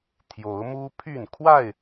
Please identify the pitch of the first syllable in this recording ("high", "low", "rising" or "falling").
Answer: rising